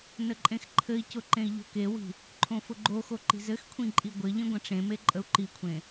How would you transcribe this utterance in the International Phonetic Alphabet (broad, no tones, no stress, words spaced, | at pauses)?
nəǃʼẽxǃʰɘi̯cʊ ǃẽi̯ʎo̤kewi̤ | ǃʰõfʊɡ͡ǃoxo ǃi̤zɘxkʷʰĩ ǃʼiɡʷɘʎĩ ɡʷə̃ʈ͡ʂẽme ǃʼəu̯ǃikʷʰẽ